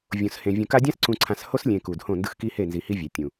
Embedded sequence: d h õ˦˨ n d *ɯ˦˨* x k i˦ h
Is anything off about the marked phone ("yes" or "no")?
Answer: yes